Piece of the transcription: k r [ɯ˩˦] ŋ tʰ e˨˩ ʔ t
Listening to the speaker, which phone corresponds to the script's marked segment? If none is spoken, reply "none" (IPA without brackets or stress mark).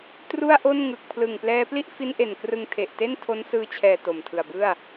ɯ˧